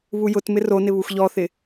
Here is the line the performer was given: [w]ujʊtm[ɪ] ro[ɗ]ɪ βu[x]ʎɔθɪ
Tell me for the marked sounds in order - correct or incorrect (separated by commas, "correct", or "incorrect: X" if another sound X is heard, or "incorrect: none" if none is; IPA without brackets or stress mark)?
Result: incorrect: β, correct, incorrect: n, correct